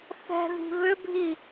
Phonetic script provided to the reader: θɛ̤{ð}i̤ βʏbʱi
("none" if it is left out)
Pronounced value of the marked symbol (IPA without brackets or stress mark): ð